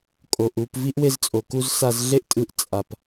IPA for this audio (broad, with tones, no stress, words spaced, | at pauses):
kʼo˩ʔu˧p vi˥ʔ we˧zt͡sʼo˩ku˧z sa˧zɮe˥ʔtʼɯ˧ʔ t͡sʼa˩p